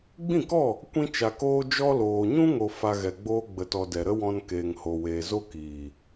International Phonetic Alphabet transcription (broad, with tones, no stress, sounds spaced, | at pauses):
ɡ͡b ĩ˦˨ k ɔ˦˨ | kʷ ĩ˧ t͡ʃ a˨ k oː˧ d͡ʒ ɔ˧ l oː˨ ɲ ũ˦ ŋ o˧ f a˧ ɣ ɛ˨ ɡ͡b oː˦ ɡ͡b ə˧ t ɔ˧ d ɛ˨ ɾ ə˦ w ɔ̃˧ n k eː˨ ŋ h o˨ w eː˨ z o˦ k iː˨